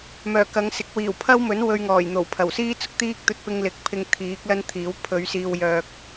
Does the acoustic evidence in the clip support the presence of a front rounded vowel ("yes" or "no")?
yes